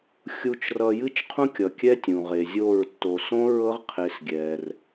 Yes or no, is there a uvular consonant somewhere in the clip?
yes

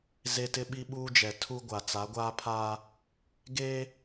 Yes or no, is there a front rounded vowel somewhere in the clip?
no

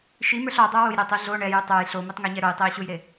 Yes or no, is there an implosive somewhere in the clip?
no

